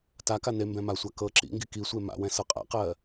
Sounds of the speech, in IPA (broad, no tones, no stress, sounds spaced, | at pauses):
t a k a n e m b ɛ̃ m a sʷ a k ɤ ǁ ḭ ŋ ɡ i k i sʷ e m a̰ w ɛ̃ s ɤ qʼ a̰ q ɜ